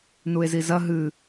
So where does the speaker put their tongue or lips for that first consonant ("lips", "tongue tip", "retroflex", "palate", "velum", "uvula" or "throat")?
tongue tip